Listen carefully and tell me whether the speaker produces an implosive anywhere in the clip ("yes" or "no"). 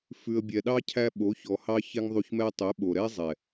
yes